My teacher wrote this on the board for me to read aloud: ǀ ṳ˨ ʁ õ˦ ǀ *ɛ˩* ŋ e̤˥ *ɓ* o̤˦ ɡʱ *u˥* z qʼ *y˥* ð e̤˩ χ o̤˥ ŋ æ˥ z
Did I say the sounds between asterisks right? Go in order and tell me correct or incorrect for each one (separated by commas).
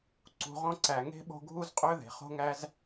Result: incorrect, correct, correct, incorrect